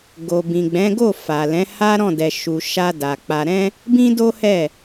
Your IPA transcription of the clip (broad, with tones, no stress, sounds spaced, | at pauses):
ɡ o˨ b ĩ˨ ɡ͡b ɛ̃˨˦ ɡ o˦˨ f a˨ l ɛ̃˨˦ h a˦ ɾ ɔ̃˦˨ d ɛ˨ ʃ u˨ ʃ a˧ d a˨ k͡p a˧ ɾ ɛ̃˦ | b ĩ˦ d o˦ h ɛ˦˨